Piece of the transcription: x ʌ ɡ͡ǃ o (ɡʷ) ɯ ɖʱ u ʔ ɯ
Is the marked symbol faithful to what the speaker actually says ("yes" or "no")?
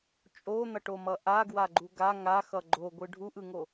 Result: yes